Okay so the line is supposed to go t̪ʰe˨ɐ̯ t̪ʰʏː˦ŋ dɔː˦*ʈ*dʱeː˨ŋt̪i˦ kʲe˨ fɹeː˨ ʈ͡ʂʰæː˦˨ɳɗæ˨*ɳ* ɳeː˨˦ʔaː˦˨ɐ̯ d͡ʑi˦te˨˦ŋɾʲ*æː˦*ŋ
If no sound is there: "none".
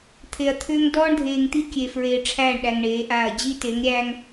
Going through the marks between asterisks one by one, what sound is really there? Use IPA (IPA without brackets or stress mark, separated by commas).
ɳ, ŋ, æː˦